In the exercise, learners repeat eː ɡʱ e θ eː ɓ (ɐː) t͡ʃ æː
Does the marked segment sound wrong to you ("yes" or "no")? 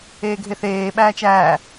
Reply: yes